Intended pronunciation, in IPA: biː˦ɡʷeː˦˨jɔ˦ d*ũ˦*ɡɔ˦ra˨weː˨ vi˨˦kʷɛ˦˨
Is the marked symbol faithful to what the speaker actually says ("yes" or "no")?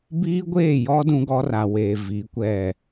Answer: yes